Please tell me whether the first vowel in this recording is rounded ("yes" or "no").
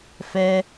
no